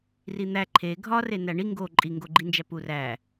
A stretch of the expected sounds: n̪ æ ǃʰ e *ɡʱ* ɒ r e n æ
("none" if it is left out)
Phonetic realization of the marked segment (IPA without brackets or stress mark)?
ɡʱ